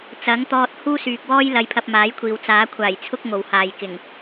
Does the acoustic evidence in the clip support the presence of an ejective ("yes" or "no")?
no